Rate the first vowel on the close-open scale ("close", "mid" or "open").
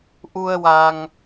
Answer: close